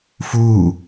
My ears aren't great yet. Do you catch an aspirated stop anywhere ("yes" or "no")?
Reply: no